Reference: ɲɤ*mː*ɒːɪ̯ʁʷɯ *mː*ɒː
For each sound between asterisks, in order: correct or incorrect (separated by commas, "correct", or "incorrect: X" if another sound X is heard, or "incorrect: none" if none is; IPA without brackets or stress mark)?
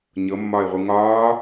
correct, incorrect: ŋ